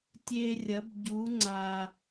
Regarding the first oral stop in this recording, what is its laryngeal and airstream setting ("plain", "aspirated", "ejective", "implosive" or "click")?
plain